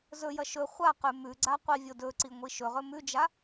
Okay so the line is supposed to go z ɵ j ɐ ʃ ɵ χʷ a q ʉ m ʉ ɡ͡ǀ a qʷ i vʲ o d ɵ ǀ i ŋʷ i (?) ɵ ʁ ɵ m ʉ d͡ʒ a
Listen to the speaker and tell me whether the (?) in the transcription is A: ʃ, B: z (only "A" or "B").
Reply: A